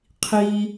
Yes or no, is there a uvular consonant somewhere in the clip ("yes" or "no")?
yes